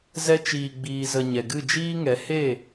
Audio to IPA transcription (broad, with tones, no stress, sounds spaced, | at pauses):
z ɛ˧ t͡ʃ iː˨ ɡ͡b iː˨ z ə˨ ɲ ɛ˨ ɡ ɨ˦˨ d͡ʒ iː˦ ŋ ɛ˨˦ h e˦˨